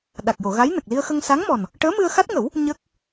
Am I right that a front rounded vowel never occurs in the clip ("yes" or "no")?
yes